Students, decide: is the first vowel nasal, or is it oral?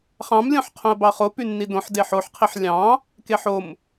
nasal